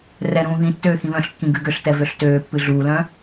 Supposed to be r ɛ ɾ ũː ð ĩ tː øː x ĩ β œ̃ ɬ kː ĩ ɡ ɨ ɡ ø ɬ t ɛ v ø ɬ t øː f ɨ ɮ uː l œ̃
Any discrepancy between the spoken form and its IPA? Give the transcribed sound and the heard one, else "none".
f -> pː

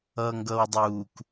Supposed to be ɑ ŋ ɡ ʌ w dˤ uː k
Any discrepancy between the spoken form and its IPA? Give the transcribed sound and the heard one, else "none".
ɑ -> ʌ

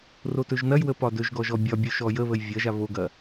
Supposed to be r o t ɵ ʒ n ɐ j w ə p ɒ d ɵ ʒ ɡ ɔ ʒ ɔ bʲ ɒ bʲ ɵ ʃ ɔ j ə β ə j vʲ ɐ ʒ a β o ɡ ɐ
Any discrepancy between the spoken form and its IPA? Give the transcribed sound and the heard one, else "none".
none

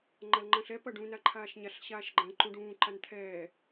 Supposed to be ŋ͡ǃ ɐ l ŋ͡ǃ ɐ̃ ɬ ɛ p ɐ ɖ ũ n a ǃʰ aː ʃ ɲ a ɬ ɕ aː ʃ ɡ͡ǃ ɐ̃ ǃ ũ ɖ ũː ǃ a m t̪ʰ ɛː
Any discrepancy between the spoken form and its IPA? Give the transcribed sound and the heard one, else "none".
m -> n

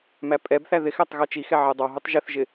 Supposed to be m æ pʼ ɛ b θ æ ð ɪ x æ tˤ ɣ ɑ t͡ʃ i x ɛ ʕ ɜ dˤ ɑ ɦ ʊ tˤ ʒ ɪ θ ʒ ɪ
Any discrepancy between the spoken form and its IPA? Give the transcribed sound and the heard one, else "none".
none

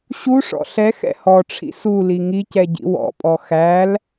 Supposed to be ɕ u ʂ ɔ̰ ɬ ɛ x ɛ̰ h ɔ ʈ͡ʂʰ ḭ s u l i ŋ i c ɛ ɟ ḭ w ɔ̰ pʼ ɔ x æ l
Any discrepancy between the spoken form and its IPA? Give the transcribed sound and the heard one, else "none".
none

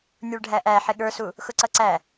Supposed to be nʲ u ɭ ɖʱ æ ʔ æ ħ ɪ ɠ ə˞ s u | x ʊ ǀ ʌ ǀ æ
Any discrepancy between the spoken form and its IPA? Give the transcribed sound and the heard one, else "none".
none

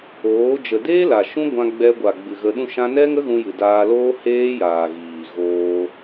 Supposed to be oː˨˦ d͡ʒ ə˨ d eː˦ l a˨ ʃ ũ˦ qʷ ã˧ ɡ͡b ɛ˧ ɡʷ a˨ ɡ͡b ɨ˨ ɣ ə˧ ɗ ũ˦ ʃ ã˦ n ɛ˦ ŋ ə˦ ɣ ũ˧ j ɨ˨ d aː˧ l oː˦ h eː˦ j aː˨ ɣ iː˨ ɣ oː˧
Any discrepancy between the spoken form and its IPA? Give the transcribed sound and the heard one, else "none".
qʷ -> ɡʷ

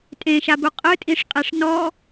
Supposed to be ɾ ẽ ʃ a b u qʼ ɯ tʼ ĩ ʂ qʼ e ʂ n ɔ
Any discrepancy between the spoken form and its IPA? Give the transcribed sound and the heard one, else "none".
ɾ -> tʼ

